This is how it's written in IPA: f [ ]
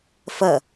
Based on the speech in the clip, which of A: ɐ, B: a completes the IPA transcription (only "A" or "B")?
A